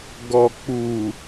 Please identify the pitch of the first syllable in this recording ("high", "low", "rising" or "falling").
low